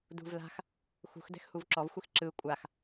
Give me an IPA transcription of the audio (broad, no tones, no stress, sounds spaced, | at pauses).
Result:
d ṳ v l a̤ x | x ṳ x d ɛ̤ x h u v ǁ ɔ v xʷ i x ǁ ɯ kʷʼ a x